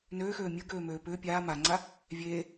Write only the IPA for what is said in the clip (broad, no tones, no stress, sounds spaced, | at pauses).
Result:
n øː x øː mʲ ə ɡ øː m øː p ʏː pʲ aː m a ŋ͡ǀ a | vʲ eː